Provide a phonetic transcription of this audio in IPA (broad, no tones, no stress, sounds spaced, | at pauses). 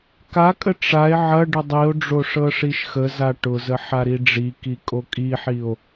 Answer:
k a kʼ ə ʈ͡ʂ a e̯ ʕ ɐ ɖ ə dˤ i o̯ ɖ͡ʐ o ʂ ɤ ʂ i ʃ x ə z a ʈ ʊ z ə ħ a ɾ i ɖ͡ʐ i k i kʼ o kʼ i ħ i o̯